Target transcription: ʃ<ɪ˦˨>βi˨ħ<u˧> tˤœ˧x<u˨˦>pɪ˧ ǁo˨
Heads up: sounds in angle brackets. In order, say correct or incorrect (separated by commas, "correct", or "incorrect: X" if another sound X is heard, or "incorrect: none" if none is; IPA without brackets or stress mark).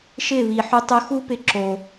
correct, correct, incorrect: u˦